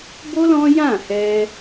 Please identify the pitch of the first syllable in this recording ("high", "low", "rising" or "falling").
high